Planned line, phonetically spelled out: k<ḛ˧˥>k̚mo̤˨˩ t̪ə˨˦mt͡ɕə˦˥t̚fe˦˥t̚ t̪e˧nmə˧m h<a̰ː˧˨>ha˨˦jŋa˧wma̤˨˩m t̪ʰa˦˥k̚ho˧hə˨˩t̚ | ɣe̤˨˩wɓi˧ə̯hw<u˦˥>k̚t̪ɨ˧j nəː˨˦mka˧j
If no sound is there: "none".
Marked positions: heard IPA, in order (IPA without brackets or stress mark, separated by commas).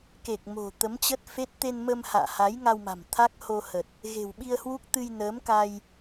e˨˩, a̰ː˧˨, u˦˥